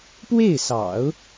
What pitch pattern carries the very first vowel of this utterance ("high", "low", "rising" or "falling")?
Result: falling